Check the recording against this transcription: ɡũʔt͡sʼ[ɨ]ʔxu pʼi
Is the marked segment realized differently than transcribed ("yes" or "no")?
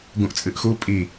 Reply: no